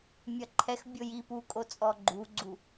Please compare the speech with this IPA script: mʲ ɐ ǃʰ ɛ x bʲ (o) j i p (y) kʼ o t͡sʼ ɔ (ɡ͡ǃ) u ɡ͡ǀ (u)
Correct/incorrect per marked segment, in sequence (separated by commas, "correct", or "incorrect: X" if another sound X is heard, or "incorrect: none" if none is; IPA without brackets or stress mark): correct, incorrect: u, correct, correct